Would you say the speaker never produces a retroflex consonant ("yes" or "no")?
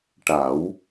no